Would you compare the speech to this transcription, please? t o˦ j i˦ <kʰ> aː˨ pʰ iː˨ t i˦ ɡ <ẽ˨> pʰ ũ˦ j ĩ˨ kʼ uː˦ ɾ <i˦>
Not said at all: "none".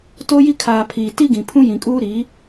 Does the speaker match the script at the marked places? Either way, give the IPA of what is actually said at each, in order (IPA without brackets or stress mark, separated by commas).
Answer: kʰ, ĩ˨, i˨˦